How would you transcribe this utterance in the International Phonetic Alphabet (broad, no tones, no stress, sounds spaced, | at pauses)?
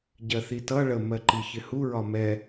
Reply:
ɟ ɜ θ i t ʌ ɭ ə m ɜ ǃ i ç ɪ h u ɹ ɒ m ɛ